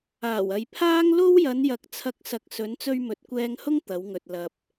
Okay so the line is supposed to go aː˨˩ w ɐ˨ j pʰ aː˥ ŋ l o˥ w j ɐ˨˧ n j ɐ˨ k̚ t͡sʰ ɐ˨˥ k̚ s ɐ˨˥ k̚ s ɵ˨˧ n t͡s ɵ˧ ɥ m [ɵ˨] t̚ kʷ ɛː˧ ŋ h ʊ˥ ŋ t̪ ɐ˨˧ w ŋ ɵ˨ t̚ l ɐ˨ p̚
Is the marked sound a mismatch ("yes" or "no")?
no